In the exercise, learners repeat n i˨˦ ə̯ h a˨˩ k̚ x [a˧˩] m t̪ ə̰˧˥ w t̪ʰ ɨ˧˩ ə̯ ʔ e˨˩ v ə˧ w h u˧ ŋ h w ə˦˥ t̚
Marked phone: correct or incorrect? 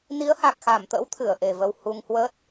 correct